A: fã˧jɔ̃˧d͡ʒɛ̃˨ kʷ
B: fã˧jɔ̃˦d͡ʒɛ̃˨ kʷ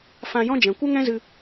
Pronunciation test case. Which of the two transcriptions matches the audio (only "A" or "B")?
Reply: B